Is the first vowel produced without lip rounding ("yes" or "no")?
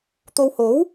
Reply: no